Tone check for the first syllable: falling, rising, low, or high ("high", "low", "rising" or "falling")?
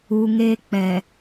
low